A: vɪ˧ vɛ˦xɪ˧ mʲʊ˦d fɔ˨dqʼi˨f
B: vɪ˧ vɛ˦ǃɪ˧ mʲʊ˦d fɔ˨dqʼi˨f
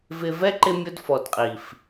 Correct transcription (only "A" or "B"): B